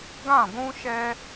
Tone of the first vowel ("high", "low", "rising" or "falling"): falling